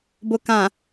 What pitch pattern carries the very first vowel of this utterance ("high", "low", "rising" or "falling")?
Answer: low